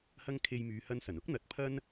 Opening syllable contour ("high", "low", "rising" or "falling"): high